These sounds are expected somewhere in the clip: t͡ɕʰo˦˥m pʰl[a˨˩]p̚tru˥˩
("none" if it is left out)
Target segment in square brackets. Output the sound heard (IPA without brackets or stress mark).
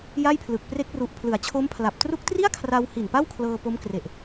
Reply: a˨˩